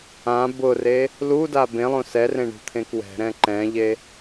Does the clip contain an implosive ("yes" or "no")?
no